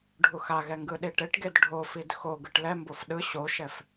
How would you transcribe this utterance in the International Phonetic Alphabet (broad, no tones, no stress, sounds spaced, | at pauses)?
ɖʱ u x a ɣ ɛ ŋ ɡ ɯ ɗ i ʈ e ʈ ɡ e d ɖʱ o f i d x o ɡ ɯ ʈ l ɛ m b o f ɗ ɯ ɕ o ʃ ɛ f